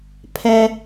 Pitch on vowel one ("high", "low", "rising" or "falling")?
high